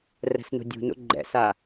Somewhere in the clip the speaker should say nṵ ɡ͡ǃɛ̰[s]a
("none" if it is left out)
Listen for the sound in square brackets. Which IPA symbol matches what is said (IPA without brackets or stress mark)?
s